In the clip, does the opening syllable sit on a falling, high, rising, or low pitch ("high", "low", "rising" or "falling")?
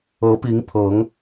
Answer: rising